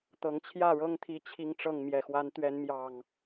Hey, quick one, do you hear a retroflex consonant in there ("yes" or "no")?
yes